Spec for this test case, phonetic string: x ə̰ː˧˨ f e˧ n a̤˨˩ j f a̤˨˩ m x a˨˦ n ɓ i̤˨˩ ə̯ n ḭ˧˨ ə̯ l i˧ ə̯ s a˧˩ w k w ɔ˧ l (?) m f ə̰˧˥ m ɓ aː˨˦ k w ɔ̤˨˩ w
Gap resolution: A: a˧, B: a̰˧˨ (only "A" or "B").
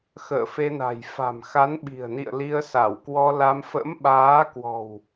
A